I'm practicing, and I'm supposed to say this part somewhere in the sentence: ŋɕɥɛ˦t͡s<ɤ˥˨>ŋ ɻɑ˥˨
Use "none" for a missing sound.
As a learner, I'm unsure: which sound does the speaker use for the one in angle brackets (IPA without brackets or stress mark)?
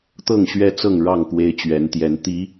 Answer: ɤ˥˨